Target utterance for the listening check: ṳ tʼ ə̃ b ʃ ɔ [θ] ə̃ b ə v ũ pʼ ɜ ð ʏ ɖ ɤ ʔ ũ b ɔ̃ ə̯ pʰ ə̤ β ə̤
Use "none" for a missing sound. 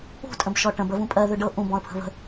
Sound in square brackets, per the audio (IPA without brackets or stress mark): ʈ